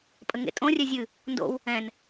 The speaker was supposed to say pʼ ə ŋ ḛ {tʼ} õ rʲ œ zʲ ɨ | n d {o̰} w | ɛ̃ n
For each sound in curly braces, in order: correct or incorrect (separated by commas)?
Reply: correct, correct